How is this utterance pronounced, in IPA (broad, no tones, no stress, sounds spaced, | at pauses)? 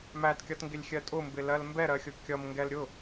m æ t kʲ ʌ t ŋ ɡ ɪ lʲ xʲ ɜ tʼ ʊ m b ɪ l ɜ l m b ɛ ɾ ɜ xʲ ʊ kʲ ʌ m ŋ ɡ ɛ l ɾʲ ʊ